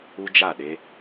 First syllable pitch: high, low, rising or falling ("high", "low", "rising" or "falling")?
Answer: high